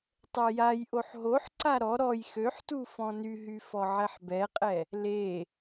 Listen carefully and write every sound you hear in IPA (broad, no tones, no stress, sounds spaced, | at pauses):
tˤ ɛ j a j ʔ o ħ ɦ o ħ ǀ a ɾ ɔ ɾ ɔ j x ø ħ t u f ɔ̃ n y ɦ y f ɔ ʕ ɛ ħ b ɛ qʼ ɛ | l e